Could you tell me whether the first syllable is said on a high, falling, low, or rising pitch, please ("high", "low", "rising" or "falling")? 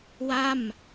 falling